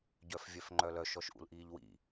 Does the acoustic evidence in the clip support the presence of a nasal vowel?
no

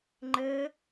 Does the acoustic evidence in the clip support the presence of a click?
yes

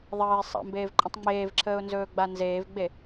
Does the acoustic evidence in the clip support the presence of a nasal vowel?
yes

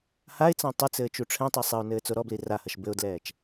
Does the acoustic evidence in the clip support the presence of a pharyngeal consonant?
no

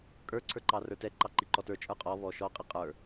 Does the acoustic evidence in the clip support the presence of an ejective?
yes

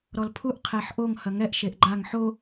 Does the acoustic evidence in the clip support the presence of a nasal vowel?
no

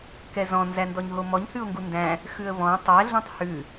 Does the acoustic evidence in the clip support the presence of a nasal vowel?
yes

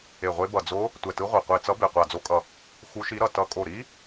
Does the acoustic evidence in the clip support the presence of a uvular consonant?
yes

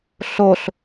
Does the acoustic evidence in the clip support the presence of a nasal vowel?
no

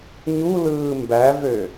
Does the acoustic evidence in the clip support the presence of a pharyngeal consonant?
no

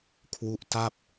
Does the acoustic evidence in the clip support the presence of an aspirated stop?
yes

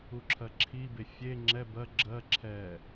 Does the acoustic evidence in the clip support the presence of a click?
yes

